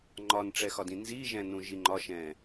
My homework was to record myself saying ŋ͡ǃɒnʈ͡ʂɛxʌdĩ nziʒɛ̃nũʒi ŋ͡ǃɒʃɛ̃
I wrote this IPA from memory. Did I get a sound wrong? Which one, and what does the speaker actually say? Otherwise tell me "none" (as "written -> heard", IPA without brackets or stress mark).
ʌ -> ɒ